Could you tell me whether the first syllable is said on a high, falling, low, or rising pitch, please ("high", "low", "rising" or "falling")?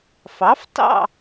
rising